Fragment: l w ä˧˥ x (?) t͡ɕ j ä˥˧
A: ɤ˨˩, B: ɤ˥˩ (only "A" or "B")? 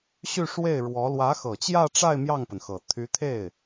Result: A